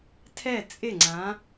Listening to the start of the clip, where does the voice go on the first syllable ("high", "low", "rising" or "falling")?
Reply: falling